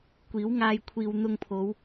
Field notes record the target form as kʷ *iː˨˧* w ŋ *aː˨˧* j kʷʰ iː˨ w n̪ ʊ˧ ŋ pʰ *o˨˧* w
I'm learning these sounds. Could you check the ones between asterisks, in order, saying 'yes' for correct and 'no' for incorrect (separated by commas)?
no, no, yes